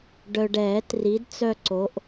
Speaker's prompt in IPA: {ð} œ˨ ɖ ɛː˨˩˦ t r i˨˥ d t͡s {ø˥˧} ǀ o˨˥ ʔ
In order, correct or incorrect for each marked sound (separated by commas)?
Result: incorrect, incorrect